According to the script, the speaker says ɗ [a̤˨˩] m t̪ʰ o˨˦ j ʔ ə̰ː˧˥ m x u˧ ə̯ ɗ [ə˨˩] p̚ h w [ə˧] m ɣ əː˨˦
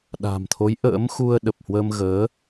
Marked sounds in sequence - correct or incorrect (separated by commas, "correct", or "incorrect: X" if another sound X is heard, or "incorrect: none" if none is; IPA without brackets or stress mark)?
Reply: correct, correct, correct